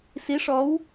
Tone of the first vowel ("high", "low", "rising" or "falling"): rising